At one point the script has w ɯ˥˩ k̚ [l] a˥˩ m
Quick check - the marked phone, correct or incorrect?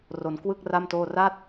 incorrect